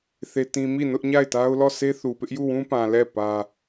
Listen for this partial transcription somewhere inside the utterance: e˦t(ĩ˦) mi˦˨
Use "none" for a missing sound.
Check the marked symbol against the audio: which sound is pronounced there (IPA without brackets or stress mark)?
ĩ˦